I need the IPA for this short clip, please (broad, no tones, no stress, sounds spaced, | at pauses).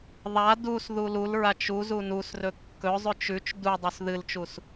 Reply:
ðˤ a d u s ð u l u l ɹ a t͡ʃ u z u n u s r ɵ kː ɵ zˤ ʉ t͡ʃ ʉ t͡ʃ d u dˤ u s ð ɨ l t͡ʃ u s